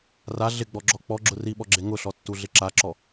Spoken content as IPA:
r a ɮ ɪ ɡ͡b ɔ ɡ͡ǁ ɔ k͡p ɔ ɡ͡ǁ ʊ r i ɓ ɔ ɡ͡ǁ e ŋ ʊ ɬ ɔ tː u ɮ ɪ ǁ a ǁ ɔ

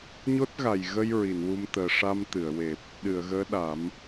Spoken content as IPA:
ɲ o˦˥ t̚ ɣ a˨˩ j ɣ ə˧ j ɹ i˨˩˨ n w u˧ m t̪ əː˨˩ ʂ a˧ m t̪ ɨ˨˩˨ ə̯ w e˨˩ p̚ | ɗ ɨ˨˩˨ ə̯ ɣ əː˧˥ ɗ a˨˩˦ m

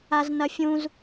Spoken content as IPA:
a z n ɐ fʲ ũ z

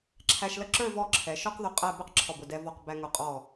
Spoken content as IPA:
ǁʰ æ˧ ʃ l ə˥˧ ǁ ə˞˥˧ v ɔ˥˧ ǁʰ ɛ˩˧ ʃ ɔ˥ q ð ʊ˧ qʼ æ˥˧ b ɛ˥ q ǁʰ ɔ˧˩ b ʊ˧˩ d ɛ˧ v ɔ˧˩ q b æ˧ ŋ ʊ˧˩ qʼ ɔ˧˩

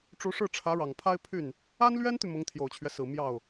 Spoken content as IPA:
ʈ͡ʂ u˧˥ ʂ ɻ̩˥˩ ʈ͡ʂʰ ä˧˥ ɻ ɑ˨˩ ŋ pʰ a˥ ɪ̯ pʰ y˥˩ n | a˥ n l ɥ ɛ˥ n t̪ y˨ m ʊ˧˥ ŋ t̪ʰ j o˨˩ ʊ̯ t͡ɕʰ ɥ ɛ˦ s ɹ̩˨˩ m j ɑ˥˩ ʊ̯

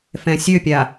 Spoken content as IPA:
f ɛ̃ sʲ ø pʲ a

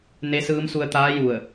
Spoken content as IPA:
n e˧˥ s ɯː˧˥ m s u˧ ə̯ t̪ aː˧˥ j u˧˩ ə̯

